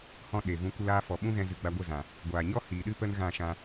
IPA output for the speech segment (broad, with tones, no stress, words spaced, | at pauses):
hɔ̃˧ ɗe˨vũ˧ kʷə˧laː˧fɔ˨ ɓũ˦ɣɛ̃˧zɨ˨ ɡ͡ba˧ɡʷə˦˨zã˨ | ɡʷaː˨ɲɔ˦hiː˨ɗɨ˦ pə˦nɣã˦˨ʃã˧